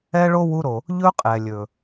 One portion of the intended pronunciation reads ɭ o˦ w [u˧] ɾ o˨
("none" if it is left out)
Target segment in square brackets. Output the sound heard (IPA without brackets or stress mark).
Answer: u˧